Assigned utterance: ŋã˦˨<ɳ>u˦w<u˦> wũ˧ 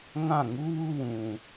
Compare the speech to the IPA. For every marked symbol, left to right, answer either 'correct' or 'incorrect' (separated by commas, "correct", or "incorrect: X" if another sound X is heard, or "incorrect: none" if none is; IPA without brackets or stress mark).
incorrect: ŋ, correct